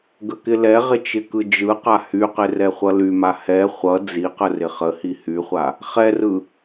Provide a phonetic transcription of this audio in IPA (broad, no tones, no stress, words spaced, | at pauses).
ɡəkɪlɛʁɪ t͡ʃɪkɯd͡ʒɯqa hyqɪ rɛχʷʌlyma hɛ χʷʌ d͡ziqə rɪχəhi hyχʷa | χɛrɯ